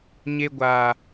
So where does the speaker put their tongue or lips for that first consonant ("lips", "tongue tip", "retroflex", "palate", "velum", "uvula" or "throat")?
palate